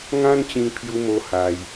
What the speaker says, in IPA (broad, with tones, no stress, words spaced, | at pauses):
ŋã˦nt͡ɕĩ˧ pʰju˦mo˦ ha˧j